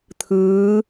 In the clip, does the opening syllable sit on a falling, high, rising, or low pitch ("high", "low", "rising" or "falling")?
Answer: rising